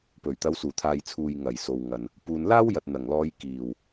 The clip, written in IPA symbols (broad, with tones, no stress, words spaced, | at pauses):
pɵ˨˩ɥ t̪ɐ˨˧wsuː˨˩t̪ʰaː˨jt͡sʰuː˨j ŋɐ˨˩jso˨wŋɐ˨n | puː˨nlaː˥wjɐ˨t̚ n̪ɐ˨˩ŋlɔː˧j kiː˨˩w